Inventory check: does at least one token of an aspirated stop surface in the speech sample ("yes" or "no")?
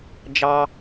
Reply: no